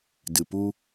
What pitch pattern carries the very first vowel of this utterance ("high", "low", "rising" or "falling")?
low